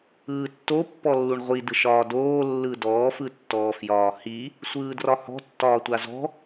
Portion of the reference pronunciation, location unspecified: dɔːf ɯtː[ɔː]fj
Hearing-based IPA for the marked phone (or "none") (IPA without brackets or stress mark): ɔː